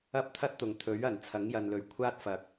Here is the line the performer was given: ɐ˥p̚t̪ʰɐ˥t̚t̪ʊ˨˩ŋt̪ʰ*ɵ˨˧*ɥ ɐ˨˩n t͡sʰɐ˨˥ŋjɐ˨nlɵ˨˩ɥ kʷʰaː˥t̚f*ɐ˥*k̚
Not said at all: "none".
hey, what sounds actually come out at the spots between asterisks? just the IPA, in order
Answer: ɵ˨˥, ɐ˨

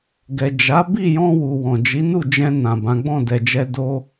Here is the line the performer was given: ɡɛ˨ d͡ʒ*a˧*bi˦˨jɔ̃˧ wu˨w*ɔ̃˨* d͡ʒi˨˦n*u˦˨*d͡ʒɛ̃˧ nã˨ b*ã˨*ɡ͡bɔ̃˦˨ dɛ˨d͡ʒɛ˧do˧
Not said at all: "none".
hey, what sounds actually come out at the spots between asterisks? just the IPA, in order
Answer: a˨˦, ɔ̃˨, u˦˨, ã˨˦

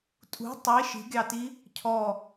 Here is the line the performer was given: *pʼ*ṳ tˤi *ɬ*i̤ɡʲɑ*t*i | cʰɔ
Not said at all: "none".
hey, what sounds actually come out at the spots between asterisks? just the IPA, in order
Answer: tʼ, ʃ, t

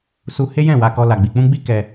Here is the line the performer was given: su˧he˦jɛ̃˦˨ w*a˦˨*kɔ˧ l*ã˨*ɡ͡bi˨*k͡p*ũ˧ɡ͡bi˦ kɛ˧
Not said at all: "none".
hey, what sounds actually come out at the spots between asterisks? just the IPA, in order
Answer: a˧, a˨, k͡p

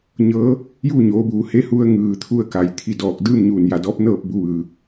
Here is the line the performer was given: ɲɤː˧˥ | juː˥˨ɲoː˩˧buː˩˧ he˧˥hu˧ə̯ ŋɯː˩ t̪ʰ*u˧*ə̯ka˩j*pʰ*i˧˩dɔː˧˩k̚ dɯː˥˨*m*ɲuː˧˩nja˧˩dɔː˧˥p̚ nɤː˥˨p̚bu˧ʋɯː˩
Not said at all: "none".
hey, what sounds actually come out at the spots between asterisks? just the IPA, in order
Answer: u˧, t̪ʰ, m

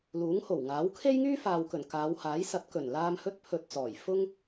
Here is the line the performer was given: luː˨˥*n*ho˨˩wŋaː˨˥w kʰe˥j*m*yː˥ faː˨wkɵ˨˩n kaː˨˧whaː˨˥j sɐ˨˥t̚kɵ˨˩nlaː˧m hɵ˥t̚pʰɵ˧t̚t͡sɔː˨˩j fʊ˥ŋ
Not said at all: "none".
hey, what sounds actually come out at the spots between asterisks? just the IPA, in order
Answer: ŋ, ŋ

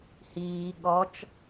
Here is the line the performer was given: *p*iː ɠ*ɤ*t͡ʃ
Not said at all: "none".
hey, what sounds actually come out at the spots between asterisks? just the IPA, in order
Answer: h, ɔ

